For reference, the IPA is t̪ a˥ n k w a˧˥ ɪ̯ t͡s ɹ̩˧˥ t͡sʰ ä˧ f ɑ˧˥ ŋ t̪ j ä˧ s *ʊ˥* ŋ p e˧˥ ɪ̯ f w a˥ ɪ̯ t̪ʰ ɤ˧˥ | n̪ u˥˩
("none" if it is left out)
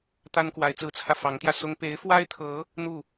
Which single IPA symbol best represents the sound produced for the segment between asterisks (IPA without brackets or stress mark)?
ʊ˥